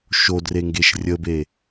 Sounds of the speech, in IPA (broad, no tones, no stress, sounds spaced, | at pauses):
ʃ o d r e ŋ ɡ e ʃ rʲ ə b e